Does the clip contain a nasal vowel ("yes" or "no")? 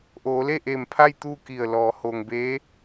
no